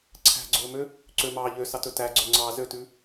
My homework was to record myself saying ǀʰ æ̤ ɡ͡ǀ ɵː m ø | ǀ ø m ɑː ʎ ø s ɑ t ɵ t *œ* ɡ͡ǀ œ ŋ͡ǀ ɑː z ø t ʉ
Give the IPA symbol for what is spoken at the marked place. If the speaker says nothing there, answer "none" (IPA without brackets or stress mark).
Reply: æ